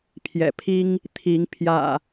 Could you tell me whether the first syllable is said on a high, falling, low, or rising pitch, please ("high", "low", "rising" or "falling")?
low